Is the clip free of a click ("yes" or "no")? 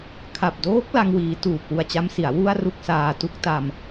yes